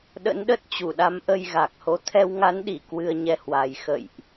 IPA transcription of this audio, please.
ɗ ə̰˧˥ n ɗ ə˦˥ t̚ t͡ɕ u˧˩ ɗ a˨˦ m ʔ ə˧ j ɣ a˨˩ k̚ h o˨˦ t̪ʰ ɛ˧ w ŋ a˨˦ n ɗ i˧˩ k w ɨ˧ ə̯ ɲ ɛ˧ h w a˨˩ j x ə̰˧˨ j ʔ

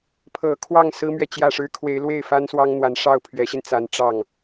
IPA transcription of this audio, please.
pʰ ɤ˨˩ kʰ w ɑ˥˩ ŋ s ɹ̩˥ m ɥ ɛ˨ t͡ɕ j ä˥˩ ʂ ɻ̩˥ kʰ w e˧˥ ɪ̯ l w e˥˩ ɪ̯ f a˥ n s w ɑ˥ ŋ n̪ w a˧˥ n ʂ ɑ˥˩ ʊ̯ pʰ ɥ ɛ˧˥ ɕ i˧ n t͡s a˧˥ n ʈ͡ʂ ɑ˥˩ ŋ

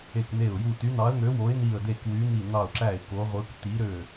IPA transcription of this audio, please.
e˧˩ k n e˧˩ ʊ̯ j u˧˩ t y˨˦ n̪ ɑ˨˦ ə̯ ŋ ø˨˦ w o˨˦ ɪ̯ n i˧˩ ə̯ d̪ e˧˩ k w y˨˦ n̪ i˧˩ n̪ ɑ˧˩ ʊ̯ ǁ æ˧˩ ɪ̯ k o˨˦ ʁʷ ɯ˨˦ k t̪ i˨˦ ɾ ø˧˩

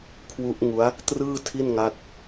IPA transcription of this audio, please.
kʰ w u˦˥ ʔ ŋ u˦˥ a̯ | t r ɯː˥˩ tʰ i˥˩ n ŋ a˦˥ t̚

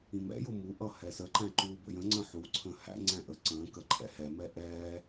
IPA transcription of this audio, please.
ĩ m ɛ̰ j ʊ m u ʔ ʌ h ɛ s ə ǃ æ̃ ǃ uː b ə̰ j ə̃ ŋ͡ǀ ə̃ ħ u ǀʰ ə̃ː h æ̰ ŋ͡ǀ æ̃ ʔ ə ǀ ə̃ː k ə ǃʰ ɛ̰ h ɛ m ɛ ʔ ɛː

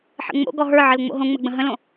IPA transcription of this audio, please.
ħ ə̰ ŋ͡m o̰ ɡ ɔ ɦ ə˞ ʕ ə l ŋ͡m o̰ ɦ õ ŋ͡m ə ɡ͡b ə̃ ɦ ə̃ l õ

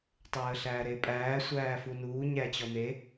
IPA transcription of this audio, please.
tˤ əː ɬ æː ɾ e pʼ æː sʷ æː f u n uː ɲ æ t͡ɕ ɔ n̪ e

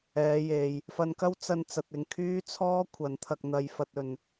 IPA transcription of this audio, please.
ɛː˨˧ j e˨ j | f ɐ˧ n k ɐ˥ w t͡s ɐ˧ n t͡s ɐ˨ t̚ ɪ˨ ŋ kʰ yː˥ t͡sʰ ɔː˥ kʷʰ ɐ˨˥ n t̪ʰ ɐ˧ k̚ n̪ ɐ˧ j f ɐ˧ t̚ ɵ˨ n

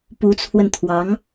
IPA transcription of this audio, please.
p u˧˥ t͡sʰ w ə˧ n t̪ʰ w ɑ˧˥ ŋ

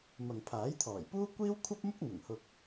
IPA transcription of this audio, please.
m ɐ˨ ŋ pʰ aː˨˥ j t̪ʰ ɔː˨˩ j p uː˥ kʷ iː˥ w kʷʰ ɐ˥ p̚ m ʊ˥ k̚ n̪ ʊ˨˩ ŋ h ʊ˧ k̚

